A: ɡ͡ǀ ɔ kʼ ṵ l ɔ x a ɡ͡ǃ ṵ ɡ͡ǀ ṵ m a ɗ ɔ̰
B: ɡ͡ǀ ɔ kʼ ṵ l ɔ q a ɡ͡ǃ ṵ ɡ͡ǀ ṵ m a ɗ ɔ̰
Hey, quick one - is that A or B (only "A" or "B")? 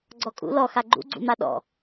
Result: A